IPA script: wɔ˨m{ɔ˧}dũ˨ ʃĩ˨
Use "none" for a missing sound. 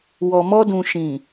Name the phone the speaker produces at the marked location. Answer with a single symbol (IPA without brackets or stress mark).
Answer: ɔ˧